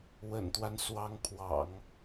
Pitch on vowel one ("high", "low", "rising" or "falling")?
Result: low